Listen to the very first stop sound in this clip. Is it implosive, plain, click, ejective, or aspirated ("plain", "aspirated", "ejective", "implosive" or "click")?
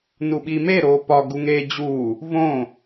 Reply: implosive